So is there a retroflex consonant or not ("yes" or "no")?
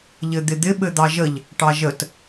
yes